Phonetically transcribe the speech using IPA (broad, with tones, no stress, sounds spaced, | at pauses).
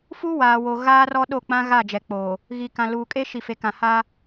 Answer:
f u˦ w aː˨ w o˨ ɣ aː˦ r ɔ˦ ɗ o˦˨ k͡p ã˦ ɣ a˦˨ d͡ʒ ɛ˨ k͡p oː˨ | ɣ i˨ k ã˨ l uː˨ kʼ e˦ ʃ i˨ f e˨ k ã˨ h a˦